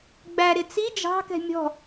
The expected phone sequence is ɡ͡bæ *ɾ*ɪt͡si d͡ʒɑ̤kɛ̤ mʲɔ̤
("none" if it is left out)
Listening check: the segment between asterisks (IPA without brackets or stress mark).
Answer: ɾ